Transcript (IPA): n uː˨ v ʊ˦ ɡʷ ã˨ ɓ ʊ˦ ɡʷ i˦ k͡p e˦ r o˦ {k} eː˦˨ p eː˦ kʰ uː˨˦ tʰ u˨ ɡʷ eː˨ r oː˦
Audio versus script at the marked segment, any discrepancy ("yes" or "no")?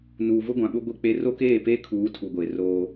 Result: no